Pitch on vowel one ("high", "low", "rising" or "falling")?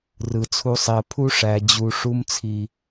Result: low